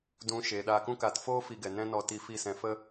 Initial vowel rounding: rounded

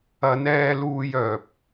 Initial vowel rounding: unrounded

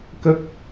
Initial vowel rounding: unrounded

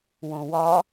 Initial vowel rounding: rounded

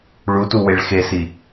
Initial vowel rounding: rounded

